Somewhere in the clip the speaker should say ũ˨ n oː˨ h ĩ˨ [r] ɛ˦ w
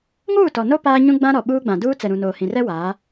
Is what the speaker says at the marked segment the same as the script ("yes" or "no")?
yes